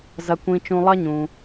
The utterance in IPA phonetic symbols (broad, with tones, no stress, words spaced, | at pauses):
zɐ˩kʷĩ˩t͡ʃũ˩ lˠɐ˦ɲũ˩